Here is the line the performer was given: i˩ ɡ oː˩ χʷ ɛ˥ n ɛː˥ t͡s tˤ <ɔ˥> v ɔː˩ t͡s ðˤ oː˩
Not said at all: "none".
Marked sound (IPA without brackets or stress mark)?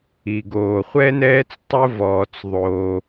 ʊ˥